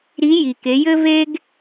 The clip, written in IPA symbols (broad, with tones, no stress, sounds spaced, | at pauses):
ɾ i˧˥ j i˩ k e˩˧ j ɘ˥ v e˥ ɡ